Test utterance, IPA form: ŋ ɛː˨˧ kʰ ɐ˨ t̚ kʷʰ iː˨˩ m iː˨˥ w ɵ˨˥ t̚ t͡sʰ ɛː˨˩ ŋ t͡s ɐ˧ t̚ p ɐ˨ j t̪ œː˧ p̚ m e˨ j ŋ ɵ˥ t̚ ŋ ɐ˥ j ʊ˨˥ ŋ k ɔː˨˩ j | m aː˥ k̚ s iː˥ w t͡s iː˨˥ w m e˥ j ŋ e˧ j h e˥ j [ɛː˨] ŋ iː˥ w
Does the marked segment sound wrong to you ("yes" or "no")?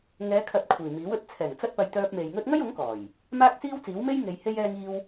yes